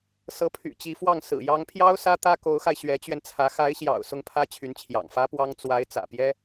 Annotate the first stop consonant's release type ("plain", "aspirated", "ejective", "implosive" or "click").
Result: aspirated